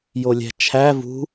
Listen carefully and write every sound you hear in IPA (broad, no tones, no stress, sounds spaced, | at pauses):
j o lʲ æ̤ t͡ʃʰ æ v ṳ